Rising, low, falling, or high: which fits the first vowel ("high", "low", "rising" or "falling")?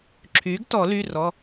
rising